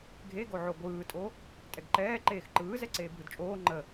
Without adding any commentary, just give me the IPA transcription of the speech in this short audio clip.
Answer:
ɡʱeɡoʕo ɡʷɯːtʼo | tʼɛɡǃɛː ǃeːxǃɯːzɛ ǀeːbʱɯdt͡ʃʼoː ŋ͡ǃə

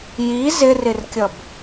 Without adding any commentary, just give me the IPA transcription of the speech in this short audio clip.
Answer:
ji zɪrɪrkʲʌb

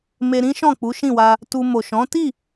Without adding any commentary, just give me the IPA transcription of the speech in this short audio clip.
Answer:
me˧ ɾĩ˦ʃɔ̃˦˨k͡pu˨˦ ʃĩ˦˨wa˧ | tu˧ mo˨ʃɔ̃˨˦ ti˦˨

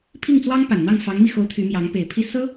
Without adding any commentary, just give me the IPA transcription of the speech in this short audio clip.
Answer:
pʰi˥˩ŋt͡swɑ˥ŋ pa˨˩nn̪ɑ˥˩ŋ fɑ˧˥ŋmi˧xo˧˥ʊ̯ t̪ʰy˧˥mjɑ˧˥ŋ pe˨˩ɪ̯ pʰi˥˩ sɤ˥

